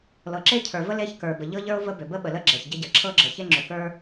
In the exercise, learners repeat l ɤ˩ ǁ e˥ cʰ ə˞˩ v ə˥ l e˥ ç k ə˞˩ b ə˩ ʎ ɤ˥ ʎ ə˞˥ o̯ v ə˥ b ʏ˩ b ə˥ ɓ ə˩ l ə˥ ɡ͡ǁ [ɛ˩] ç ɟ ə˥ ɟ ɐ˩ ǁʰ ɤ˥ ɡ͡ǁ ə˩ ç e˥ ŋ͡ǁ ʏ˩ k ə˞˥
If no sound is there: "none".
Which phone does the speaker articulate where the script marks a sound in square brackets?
ɛ˩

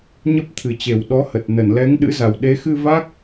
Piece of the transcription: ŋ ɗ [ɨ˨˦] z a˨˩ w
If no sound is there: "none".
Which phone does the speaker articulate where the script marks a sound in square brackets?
ɨ̰˧˥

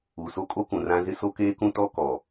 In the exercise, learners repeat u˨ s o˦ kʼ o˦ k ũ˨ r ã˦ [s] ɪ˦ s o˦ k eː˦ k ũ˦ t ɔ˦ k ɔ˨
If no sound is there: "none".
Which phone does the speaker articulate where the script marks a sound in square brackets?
z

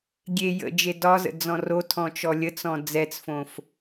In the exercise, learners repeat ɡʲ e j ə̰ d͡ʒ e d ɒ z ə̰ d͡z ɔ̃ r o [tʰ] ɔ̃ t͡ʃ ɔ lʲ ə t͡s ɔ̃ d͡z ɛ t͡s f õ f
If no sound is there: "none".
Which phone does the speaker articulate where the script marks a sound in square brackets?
tʰ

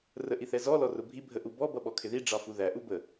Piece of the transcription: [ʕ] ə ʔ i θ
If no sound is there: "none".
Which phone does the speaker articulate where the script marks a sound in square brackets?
r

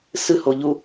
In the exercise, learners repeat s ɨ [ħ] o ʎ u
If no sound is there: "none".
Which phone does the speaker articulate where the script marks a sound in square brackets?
h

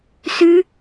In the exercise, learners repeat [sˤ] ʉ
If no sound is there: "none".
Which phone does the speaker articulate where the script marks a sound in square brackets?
s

